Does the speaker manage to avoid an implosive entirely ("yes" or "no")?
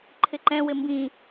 yes